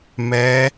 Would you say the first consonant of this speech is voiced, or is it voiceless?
voiced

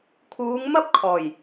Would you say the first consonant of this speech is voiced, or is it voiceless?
voiceless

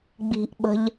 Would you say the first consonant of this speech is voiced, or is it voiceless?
voiced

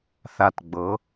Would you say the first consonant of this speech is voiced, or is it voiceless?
voiceless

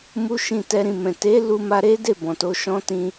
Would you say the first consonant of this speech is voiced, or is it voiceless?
voiced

